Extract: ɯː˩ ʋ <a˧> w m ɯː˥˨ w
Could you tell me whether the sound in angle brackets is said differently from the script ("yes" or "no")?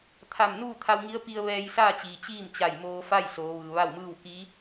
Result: yes